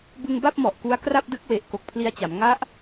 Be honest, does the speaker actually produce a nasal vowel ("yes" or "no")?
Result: no